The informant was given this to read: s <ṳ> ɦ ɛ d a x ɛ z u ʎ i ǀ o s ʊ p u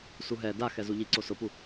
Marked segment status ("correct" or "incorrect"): incorrect